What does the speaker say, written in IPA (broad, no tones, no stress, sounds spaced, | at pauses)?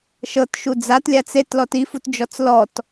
ʃ ɤ t ʃ u d͡z a t lʲ a t͡s e t l ɔ t i f u t d͡ʒ ɔ t͡s l ɔ t